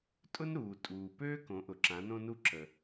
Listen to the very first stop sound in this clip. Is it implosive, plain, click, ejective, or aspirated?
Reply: ejective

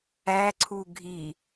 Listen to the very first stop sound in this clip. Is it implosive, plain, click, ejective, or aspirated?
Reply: click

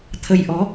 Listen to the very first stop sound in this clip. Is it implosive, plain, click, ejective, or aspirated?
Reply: aspirated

